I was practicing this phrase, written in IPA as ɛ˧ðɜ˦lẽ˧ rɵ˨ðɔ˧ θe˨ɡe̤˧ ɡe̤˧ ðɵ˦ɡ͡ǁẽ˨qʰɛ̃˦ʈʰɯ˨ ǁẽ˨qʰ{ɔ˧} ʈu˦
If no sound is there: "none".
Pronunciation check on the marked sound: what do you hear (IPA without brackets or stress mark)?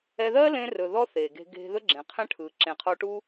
ɔ˧